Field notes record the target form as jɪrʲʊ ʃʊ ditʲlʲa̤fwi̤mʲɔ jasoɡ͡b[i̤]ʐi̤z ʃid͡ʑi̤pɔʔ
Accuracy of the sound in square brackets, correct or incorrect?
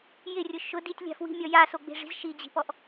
incorrect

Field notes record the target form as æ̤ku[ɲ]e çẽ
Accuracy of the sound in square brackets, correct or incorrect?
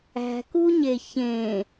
correct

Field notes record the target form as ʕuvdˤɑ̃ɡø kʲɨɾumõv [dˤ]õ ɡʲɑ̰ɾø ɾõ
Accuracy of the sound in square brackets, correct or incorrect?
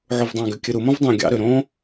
correct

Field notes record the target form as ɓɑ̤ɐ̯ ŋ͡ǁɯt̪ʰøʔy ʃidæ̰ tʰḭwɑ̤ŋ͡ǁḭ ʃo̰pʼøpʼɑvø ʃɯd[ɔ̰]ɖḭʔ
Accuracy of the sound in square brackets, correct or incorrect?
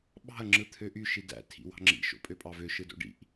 incorrect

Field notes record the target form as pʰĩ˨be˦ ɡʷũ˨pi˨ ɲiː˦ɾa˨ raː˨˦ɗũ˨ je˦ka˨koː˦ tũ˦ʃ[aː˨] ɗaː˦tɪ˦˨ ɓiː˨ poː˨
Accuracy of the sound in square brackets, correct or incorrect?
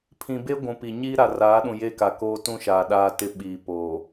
correct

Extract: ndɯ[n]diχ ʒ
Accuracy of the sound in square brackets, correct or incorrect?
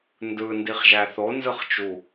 correct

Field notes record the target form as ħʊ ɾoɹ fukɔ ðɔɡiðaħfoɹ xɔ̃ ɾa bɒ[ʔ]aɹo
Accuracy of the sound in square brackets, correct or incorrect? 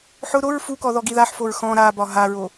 incorrect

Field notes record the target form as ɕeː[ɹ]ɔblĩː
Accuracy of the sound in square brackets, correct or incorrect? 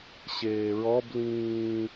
correct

